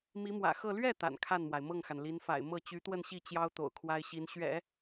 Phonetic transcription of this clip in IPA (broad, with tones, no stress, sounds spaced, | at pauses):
m i˧˥ m w ä̰˨˩ x ɤ˥˧ l ɥ ɛ˥˩ t̪ a̰˨˩ n kʰ a˥˩ n m w a˩ ɪ̯ m ɤ˥˩ ŋ x a˩ n l i˧˥ n f a̰˨˩ ɪ̯ m ɤ˥˩ t͡ɕ y˧˥ t̪ w ə˥˧ n ɕ i˥˩ t͡ɕ j ɑ˥ ʊ̯ t̪ o̰˨˩ ʊ̯ kʰ w a˥ ɪ̯ ɕ i˧˥ n ɕ ɥ ɛ̰˨˩˦